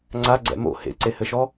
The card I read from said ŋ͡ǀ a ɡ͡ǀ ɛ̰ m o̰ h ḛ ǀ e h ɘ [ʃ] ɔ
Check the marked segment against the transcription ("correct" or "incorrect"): correct